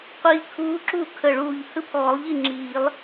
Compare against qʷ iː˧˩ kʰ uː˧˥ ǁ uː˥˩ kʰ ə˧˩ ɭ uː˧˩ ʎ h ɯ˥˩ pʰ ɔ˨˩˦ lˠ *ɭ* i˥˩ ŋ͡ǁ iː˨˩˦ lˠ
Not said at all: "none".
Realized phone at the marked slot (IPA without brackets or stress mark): ʎ